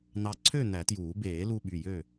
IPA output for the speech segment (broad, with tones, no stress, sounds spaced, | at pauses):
n̪ ɑ˧ ǀʰ ø˥˨ n̪ æ˨˩˦ t j uː˨˩˦ b eː˨˩˦ l u˧ ɓ y˩˧˩ j ø˥˨